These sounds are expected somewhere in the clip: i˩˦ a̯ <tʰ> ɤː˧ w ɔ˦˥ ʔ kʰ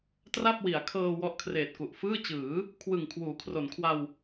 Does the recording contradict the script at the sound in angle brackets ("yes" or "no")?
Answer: yes